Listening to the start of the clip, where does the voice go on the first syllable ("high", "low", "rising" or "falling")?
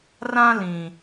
high